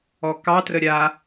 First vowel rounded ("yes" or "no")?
yes